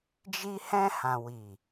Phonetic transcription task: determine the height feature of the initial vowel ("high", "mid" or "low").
high